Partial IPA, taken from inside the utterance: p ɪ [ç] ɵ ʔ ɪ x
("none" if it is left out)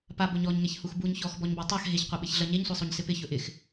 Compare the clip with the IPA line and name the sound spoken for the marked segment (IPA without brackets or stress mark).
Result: ç